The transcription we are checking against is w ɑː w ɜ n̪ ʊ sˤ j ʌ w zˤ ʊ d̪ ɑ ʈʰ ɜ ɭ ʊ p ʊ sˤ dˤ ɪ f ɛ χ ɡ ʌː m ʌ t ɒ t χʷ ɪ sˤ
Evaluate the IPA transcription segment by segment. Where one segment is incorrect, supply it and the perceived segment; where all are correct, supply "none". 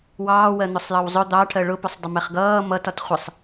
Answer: f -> m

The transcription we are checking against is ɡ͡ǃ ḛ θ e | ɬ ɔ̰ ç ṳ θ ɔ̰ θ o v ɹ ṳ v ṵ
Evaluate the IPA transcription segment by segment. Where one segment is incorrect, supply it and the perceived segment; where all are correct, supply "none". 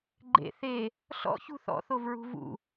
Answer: none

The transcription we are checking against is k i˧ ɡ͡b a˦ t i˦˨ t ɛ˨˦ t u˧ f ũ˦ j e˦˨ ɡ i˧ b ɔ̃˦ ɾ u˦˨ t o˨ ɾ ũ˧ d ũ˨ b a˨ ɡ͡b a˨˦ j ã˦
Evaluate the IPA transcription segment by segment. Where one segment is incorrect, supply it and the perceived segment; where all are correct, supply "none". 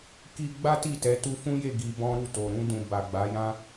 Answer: none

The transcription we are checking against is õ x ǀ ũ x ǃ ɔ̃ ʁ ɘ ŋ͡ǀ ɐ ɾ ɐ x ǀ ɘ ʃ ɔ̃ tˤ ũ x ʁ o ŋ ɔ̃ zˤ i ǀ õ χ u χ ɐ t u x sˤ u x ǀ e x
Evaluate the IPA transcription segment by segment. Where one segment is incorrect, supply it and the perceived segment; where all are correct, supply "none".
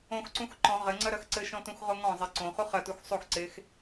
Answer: tˤ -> t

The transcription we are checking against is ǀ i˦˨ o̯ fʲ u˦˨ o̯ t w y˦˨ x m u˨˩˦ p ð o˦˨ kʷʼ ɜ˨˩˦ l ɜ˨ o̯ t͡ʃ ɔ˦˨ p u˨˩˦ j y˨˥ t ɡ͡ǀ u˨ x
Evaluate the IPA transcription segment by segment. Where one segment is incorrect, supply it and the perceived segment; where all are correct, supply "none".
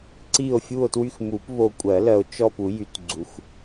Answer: ð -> β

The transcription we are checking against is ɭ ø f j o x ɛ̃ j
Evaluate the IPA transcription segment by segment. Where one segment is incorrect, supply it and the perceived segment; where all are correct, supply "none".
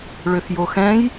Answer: none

